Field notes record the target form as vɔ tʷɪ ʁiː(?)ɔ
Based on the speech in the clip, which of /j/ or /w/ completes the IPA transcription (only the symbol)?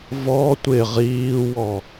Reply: w